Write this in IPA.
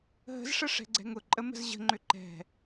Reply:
ɦ ə̤ z ʂ ə ʂ ɛ̤ ɡ͡ǀ ɛ̤ ŋ ʊ ǃʼ ə m ə̤ z ʑ ə̤ ŋ͡ǃ ʏ ǃ ɛ̤

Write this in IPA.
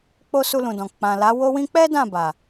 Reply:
k͡p o˧ s u˧ l ũ˨ d ɔ̃˨ k͡p ã˨ l a˨˦ w o˧ w ĩ˧ k͡p ɛ˦ d ã˦˨ b a˨

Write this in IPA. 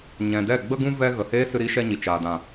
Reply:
ɲ ɛ̃˨ d ɛ˦˨ ɡ͡b ə˧ ɡ ũ˧ v ɛ˧ ɣ ə˨ h eː˦ s ɨ˧ ɾ i˦ ʃ ɛ˧ ɲ i˨ t͡ʃ aː˨ d ã˨

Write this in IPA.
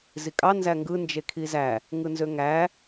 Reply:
z i kʼ ɑ n z æ ŋ ɡ ɯ n d͡ʒ e kʰ i z æ | ŋ ɯ n z ø ŋ æ

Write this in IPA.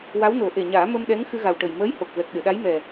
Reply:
w a˧˥ w n o˨˩˦ ʔ e˨˩ ɲ aː˨˩˦ m ə˧ m ɗ ɛ˧˥ ŋ x ɨ˧ ɣ a˨˩ w ʈ ə˨˩ j m əː˧˥ j h o˨˩ k̚ v ɛ˨˩ k̚ ɗ ɨ˨˩˨ ɗ a˧˥ j m ɛ˨˩

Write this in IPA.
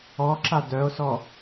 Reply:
ɔ ǁ a d œ o̯ s ɔ

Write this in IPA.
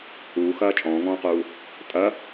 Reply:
h uː x ɐː t͡ʃʼ ɔ̃ː ŋ ɔ̃ː q uː | tʼ ɐ

